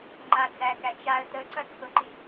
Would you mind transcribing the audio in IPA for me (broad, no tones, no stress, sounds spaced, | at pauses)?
ŋ͡ǃ a d͡z æ k æ t͡ʃ a ə̯ t ə ǀ ɐ t͡sʰ ʊ ǃ i